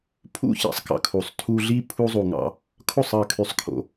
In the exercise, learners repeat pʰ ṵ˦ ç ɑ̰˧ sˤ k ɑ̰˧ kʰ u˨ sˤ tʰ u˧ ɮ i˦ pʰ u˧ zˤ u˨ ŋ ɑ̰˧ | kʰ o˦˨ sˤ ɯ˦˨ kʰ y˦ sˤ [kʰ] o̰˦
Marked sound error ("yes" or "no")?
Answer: no